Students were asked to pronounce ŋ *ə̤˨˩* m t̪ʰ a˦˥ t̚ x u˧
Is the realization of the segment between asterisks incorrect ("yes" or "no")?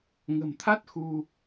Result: no